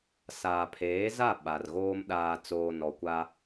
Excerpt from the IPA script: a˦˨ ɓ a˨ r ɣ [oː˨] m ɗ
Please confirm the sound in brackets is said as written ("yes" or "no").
no